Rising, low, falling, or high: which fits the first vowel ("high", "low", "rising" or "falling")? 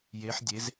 rising